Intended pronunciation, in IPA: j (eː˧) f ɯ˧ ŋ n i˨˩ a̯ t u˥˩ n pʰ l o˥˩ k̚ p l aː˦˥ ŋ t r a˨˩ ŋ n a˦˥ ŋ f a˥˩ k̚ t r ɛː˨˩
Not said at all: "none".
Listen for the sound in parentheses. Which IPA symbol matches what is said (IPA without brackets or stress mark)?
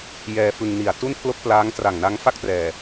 ɛː˧